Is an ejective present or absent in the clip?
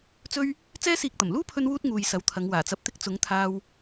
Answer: absent